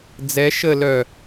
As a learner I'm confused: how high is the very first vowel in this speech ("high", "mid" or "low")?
mid